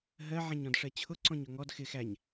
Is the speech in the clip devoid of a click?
no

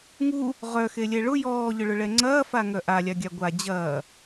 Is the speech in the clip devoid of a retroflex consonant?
no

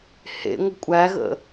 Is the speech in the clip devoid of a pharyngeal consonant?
yes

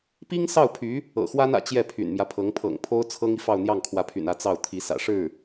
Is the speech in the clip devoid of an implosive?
yes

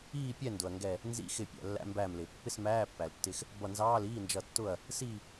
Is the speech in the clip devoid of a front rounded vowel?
yes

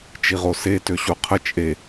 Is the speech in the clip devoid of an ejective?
no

